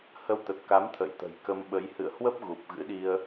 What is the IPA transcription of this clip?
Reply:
h ə˧ w t̪ ə˨˩ t̚ k a˨˦ m t̪ʰ ə̰˧˨ j t̪ ə̤˨˩ j k ə˧ m ɓ ə˨˦ j h ɨ̰˧˨ ə̯ h w ə˦˥ p̚ ɣ u˨˩ p̚ ɣ ɨ̰˧˥ ɗ i˧ ə̯

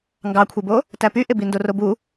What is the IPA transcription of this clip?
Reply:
ŋ ɡ ɑ kʷʰ e b o | t æ p y ʔ e b i n d o r o b u

